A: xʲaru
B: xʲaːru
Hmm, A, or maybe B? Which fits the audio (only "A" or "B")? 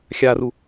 A